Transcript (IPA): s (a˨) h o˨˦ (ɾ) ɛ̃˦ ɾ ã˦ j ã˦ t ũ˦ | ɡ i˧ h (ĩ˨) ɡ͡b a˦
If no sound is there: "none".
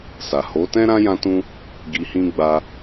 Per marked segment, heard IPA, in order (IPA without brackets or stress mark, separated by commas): a˨, t, ĩ˦